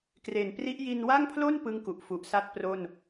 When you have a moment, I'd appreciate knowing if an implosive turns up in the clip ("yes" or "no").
no